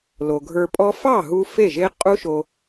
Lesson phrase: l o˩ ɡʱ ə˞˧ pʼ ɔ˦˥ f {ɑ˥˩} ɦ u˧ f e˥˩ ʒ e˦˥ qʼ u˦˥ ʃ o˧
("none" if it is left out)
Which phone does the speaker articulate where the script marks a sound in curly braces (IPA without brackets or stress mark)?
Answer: ɑ˥˩